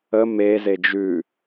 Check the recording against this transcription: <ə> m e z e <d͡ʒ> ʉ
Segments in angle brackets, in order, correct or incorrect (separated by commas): correct, correct